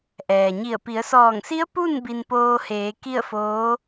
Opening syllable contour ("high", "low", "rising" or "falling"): low